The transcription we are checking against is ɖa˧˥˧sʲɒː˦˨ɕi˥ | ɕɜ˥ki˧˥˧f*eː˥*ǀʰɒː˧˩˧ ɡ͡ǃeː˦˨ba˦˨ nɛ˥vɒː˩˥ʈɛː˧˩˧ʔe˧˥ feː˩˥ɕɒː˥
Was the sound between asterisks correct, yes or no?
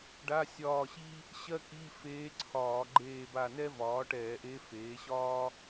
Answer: no